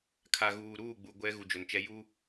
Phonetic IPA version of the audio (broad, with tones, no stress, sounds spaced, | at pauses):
kʰ a˨ ɣ uː˨ ɾ uː˦˨ ɡ͡b u˨ ɡʷ ɛ˦ ɣ u˨ d͡ʒ ʊ˨ n t͡ʃ ɛ˦ j u˦